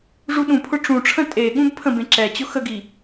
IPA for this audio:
ʐ u ɗ ũ pʰ ʊ ʈ͡ʂ ũ ʈ͡ʂʰ ə̃ tʼ e ɠ ũ b pʰ ə̃ b ẽ ǁ ɛ t͡ɕ ʊ x ə ɡ i

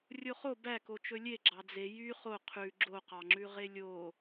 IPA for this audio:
rʲ o χ o b æ k o t͡ʃ ɵ lʲ e ɡ͡ǁ ɑ d͡z e j y χ o qʰ ʉ ɡ͡ǁ o q ɑ ŋ͡ǁ ʉ ʁ e lʲ o

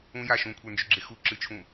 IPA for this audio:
ũ j a ʃ ũ kʷʰ ə˞ n d͡ʒ ʏ ɡ͡ǁ e x u ǁ ɨ t͡ʃʰ ũ

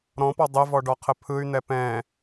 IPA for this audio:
ɾ ɔ̃ p ɔ dˤ ə v ɔ ɖ ɔ qʰ ə pʰ ɯ y̯ n̪ ɛ p ɛ̃

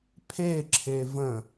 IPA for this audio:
pʰ e ǁʰ e v ə̃

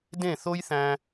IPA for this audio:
d ẽ˦˨ θ o˦ j θ æ̃˧

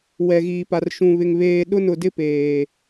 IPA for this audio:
w ɛ˨ ɣ iː˨ p a˨ r ʃ ũ˨ β ɪ˨ ŋ β eː˨ ɗ ʊ˦ n ʊ˨ d ɪ˦ p eː˨

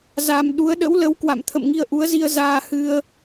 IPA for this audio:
z a˨˩ m ɗ u˨˦ ə̯ ɗ ə̰˧˥ w l ə˨˦ w k w a̰˧˨ m t̪ʰ ə̰˧˨ m ŋ i˧ ə̯ ʔ u˨˦ ə̯ z i˧ ə̯ z aː˧ h ɨ˧ ə̯

